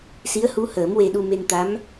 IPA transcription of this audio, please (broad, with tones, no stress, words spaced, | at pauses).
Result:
si˧˥ə̯hu˧˥həː˨˩˦m we˧ɗu˧ me˧nt̪a˧˥m